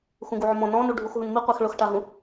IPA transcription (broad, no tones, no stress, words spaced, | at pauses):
xũɡuʕʊmɔ̃ nɔ̃nu ɖʱuxɦũnmiqʷɛx ɭʊxʈaɦũ